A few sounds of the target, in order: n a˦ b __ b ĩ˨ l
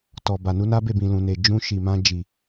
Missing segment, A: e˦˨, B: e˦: A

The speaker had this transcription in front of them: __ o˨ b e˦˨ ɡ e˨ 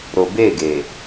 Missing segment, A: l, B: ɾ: B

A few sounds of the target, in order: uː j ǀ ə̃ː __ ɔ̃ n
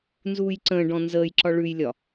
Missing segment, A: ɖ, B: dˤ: A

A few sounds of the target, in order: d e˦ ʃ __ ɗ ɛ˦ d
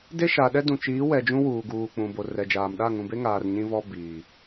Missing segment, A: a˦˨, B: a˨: B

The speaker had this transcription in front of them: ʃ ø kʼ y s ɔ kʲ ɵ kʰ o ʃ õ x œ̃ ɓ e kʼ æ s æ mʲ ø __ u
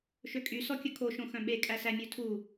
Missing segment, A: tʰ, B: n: A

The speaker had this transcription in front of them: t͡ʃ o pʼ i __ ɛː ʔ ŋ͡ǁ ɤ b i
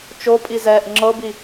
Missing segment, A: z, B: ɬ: A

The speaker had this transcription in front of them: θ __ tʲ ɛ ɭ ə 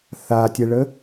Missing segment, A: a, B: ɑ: A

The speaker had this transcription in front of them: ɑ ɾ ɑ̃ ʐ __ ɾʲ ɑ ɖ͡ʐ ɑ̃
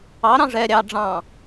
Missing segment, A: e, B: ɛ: B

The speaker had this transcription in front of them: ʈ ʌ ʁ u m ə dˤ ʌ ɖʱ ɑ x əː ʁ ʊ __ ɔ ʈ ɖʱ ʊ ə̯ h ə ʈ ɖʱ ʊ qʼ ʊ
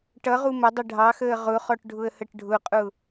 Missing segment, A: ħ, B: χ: B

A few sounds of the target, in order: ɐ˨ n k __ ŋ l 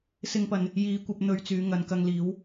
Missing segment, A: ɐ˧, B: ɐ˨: A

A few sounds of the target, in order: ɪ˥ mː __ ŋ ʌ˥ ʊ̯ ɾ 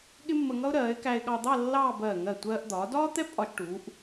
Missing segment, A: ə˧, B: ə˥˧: A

